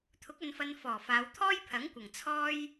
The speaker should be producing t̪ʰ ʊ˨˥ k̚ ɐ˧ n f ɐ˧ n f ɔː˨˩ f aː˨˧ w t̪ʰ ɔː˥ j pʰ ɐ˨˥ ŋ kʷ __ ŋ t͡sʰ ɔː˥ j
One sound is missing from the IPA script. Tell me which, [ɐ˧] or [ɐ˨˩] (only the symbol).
ɐ˨˩